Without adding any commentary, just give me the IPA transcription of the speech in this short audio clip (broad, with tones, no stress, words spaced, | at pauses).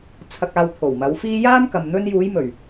t͡sʰɐ˧k̚aː˧wt̪ʰo˨˩w mɐ˨˧wfiː˥ jaː˥mkɐ˨m n̪ɵ˧njuː˨˧jmɵ˨˩ɥ